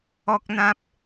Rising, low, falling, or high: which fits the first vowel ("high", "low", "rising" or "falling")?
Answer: high